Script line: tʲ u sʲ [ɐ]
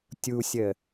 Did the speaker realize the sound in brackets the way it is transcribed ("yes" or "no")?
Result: no